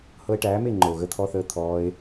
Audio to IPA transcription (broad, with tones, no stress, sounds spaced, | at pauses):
h ɤ˧ e̯ ʈ æː˨˦ m e˦˨ ŋ͡ǃ ɤ˨ o̯ ɣ ə˦ t̪ʰ ɔ˦ θ əː˦ t̪ʰ ɔː˧ e̯